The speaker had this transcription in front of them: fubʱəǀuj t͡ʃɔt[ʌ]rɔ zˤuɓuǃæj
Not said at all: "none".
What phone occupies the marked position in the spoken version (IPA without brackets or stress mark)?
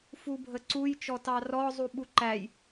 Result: ɑ